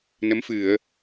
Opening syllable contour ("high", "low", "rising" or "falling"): rising